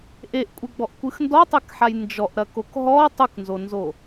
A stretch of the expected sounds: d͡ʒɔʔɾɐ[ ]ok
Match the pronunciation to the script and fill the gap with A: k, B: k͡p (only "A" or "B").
A